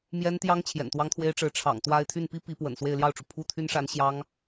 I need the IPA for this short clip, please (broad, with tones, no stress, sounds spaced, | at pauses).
m j ɛ˥ n t̪ j ɑ˥ ŋ t͡ɕʰ j ɛ̰˨˩ n t̪ w ɑ˥ ŋ t̪ʰ w e˥ ɪ̯ ʈ͡ʂ ɻ̩˧˥ ʈ͡ʂʰ ɑ̰˨˩ ŋ t̪ w a˥˧ ɪ̯ t̪ʰ y˥˩ n p i˥ p i˧˥ p w ə̰˨˩ n s w e˥˧ ɪ̯ l j ɑ˥˩ ʊ̯ ʈ͡ʂ u˩ pʰ u˥˩ t̪ʰ y˥ n ʂ a˧˥ n ɕ j ɑ˥ ŋ